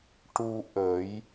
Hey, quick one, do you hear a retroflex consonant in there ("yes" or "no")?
yes